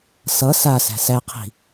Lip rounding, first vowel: unrounded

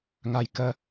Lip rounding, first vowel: unrounded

